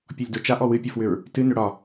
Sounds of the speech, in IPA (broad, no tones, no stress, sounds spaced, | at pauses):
pʲ ɔ lʲ d o t͡ʃ a ʔ ɔ w ɨ pʲ ɔ f w ʏ ɹ | t ɨ n ʏ ɽ ɒ